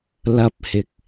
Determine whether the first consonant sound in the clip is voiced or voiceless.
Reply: voiced